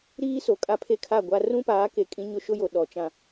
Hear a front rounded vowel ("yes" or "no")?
no